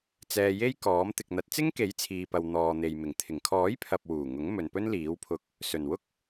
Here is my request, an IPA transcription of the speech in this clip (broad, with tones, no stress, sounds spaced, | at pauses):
t͡s ɛː˧ j e˥ j k ɔː˨˥ m t̪ ɪ˨ k̚ n̪ ɐ˨˥ t̚ t͡s ɪ˥ ŋ k e˨˥ j t͡sʰ iː˨ p ɐ˨ w n̪ ɔː˨ n̪ e˨ j m ɪ˨˩ ŋ t̪ʰ ɪ˨˩ ŋ kʰ ɔː˨˥ j pʰ ɐ˨ p̚ w uː˨˩ ŋ ʊ˨˥ ŋ m ɵ˨ n p ɵ˥ n l iː˨˥ w pʰ ʊ˧ k̚ | s ɵ˨˩ n w ʊ˥ k̚